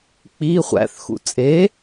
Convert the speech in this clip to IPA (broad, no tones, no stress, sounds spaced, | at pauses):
k͡p i χʷ æ̰ θ x ṵ t͡sʼ e